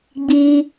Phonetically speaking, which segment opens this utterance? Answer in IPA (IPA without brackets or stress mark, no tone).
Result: ɡ͡b